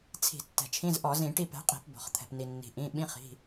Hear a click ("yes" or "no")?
no